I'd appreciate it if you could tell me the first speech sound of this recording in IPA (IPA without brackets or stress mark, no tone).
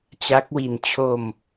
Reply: t͡ɕ